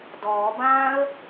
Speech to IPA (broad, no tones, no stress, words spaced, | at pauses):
dɔːbãːə̯